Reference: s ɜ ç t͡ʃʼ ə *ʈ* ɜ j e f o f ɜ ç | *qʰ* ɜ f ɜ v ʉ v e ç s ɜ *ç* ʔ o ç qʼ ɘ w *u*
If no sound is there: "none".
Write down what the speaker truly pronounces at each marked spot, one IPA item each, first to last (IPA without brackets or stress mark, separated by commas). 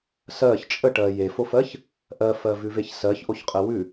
ʈ, ʔ, ç, ʉ